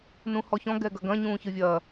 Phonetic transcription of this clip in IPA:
n ũ h ɔ ç ɔ̃ ɡ ɛ ɡ ɐ ɡ ɐ̃ ɲ ũː ç ɨ vʲ ɐː

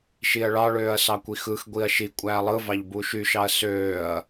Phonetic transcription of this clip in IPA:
ʃ i ɐ̯ ɭ ɑ ɭ øː ɐ̯ s ɑ kʷ i x ɯ x ɡʷ i ɐ̯ ʃ i kʷʼ æː lˠ ɯ v ɑ ʎ b u ʃ y ʃ ɑ ɐ̯ s øː ɐ̯

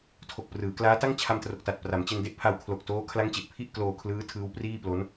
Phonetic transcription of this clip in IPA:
tʰ o˨˩ k̚ p r ɯː˩˦ k l aː˦˥ t a˥˩ ŋ t͡ɕʰ a˧ m t r o˨˩ k̚ t a˨˩ t̚ p r a˩˦ m t͡ɕ e˧ n d e˥˩ ʔ pʰ a˧ w kʰ l o˨˩ k̚ t oː˦˥ kʰ l a˦˥ ŋ t͡ɕ e˨˩ ʔ pʰ i˥˩ ʔ k l oː˧ kʰ l ɯː˦˥ tʰ ɯː˦˥ w p r iː˥˩ p l o˦˥ n

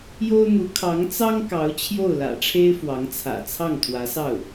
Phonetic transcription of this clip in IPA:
j o˥ ʊ̯ n̪ u˧˥ kʰ ɑ˧˥ ŋ t͡s ɑ˥ ŋ k ɑ˧˥ ʊ̯ t͡ɕʰ j o˥˩ ʊ̯ l ä̰˨˩ ʈ͡ʂʰ e˥ ɪ̯ f w ɑ˧˥ ŋ t͡sʰ ä̰˨˩ t͡sʰ ɑ˥˩ ŋ t̪ʰ w ä˧˥ s ɑ˥˩ ʊ̯

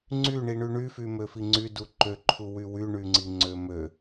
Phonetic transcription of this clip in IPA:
ŋ͡ǀ y ɳ i ɳ y ɳ y f y m ø f i ŋ͡ǀ y d u ǃ ø ǃʰ u w y w y ɳ y ŋ͡ǀ i ŋ͡ǀ ø m ø

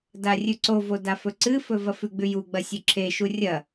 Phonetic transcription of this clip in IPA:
d a rʲ ʉ ǀ o v o d a f ɵ ǀ ɨ f ɵ v ɐ f ʉ ɡ͡b ʉ j u ɡ͡b ɐ sʲ ɵ ǁʰ e ʃ u rʲ ɐ

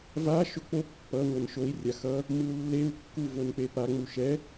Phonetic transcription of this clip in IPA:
v a ʃ o k͡p o pː ʌ ŋʷ ʌ n ʃ o i̯ rʲ a x ʌ | m ɯ u̯ lː e u̯ kː u v o n k͡p e p a ŋ͡m u ʃ ɛ

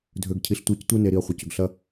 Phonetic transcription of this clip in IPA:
dʱ ø˨ ɡ cʰ i˨ ɬ tʷ a˦˨ c tʷ e˦ n e˨ ɾ i˨ ɐ̯ χʷ ə˨ c ʏ˨ ɡ ɬ ɐ˦

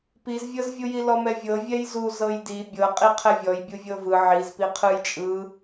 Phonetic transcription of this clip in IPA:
p i z vʲ ɤ z vʲ u j i l ɔ m ɛ vʲ ɤ vʲ ɛ j z u z ɤ j d i bʲ ɤ qʼ i qʰ ɛ vʲ ɔ j bʲ u vʲ ɤ v ɯ ʕ i z p i qʰ ɯ j t͡ʃʼ ɯ

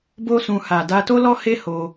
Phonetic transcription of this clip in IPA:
b o˦ s ũ˧ h a˨ d a˧ t o˦ l ɔ˦ h e˦ h o˧

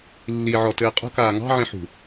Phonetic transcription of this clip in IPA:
lː i ʕ ɔ t ɘː qʼ ə̤ k aː ŋ ɑ̤ ʕ ĩ ħ ṳ

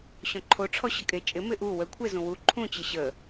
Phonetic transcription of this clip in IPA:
ɕ ɔ̃ ǃʰ o ʈ͡ʂʰ ɔ ɕ ə kʼ e t͡ʃʼ ɪ m ɪ ʔ u w ə kʷʰ e z ũ w u ǃʰ ũ t͡ɕ ɪ ɕ ə

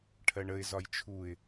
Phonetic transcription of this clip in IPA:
ʈʰ ɜ ɳ ə ɪ̯ z ɒ j t͡ʃʰ u ɪ̯

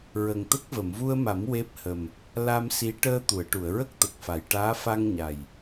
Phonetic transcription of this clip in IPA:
ɹ ə˨˩ ŋ t̪ ə˦˥ k̚ v ə˨˩˨ m v u˧ ə̯ m a˨˩˦ m w e˦˥ p̚ h ə˨˩ m | l a˧ m s i˧˥ ʈ əː˧ t̪ u˨˩˨ ə̯ ʈ u˨˩˨ ə̯ ɹ ə˦˥ k̚ t̪ ə˨˩ k̚ f a˨˩˨ j ʈ aː˧˥ f a˧ ŋ ɲ a˨˩ j

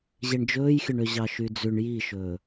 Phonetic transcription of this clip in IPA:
ʑ e ɳ d͡ʒ ɵː j xʲ ɵ ɳ ø ʑ ɑ ʃ y d͡z ʉ ɳ j i ʃ ɵː

